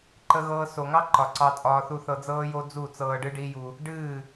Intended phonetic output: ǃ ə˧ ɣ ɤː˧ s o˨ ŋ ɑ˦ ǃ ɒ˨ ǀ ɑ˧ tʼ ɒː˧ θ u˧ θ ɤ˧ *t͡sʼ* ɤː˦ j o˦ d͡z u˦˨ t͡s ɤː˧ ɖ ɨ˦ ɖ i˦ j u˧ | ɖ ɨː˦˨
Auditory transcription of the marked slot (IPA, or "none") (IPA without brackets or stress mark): d͡z